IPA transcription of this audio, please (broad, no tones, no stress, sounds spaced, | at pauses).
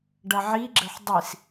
ɖ ɐ ʕ i ɡ͡ǁ ə ħ dˤ i s